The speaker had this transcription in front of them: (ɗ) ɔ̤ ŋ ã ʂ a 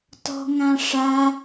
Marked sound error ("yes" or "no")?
yes